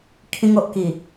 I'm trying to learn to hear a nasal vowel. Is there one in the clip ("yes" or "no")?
yes